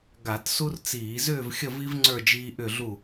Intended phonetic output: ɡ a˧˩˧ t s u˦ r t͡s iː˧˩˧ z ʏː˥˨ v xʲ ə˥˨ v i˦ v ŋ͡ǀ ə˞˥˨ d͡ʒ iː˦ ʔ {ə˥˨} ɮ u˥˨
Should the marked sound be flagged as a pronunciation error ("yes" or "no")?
yes